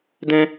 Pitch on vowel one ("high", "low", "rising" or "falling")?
high